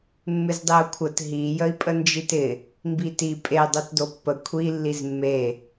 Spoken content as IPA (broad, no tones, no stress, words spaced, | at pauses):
mːɪzdˤeu̯kʷʰət ɦi jəi̯pʼənd͡ʒitɪ | mbiti pʼe dˤotdopːə kʷʰi lːizmːe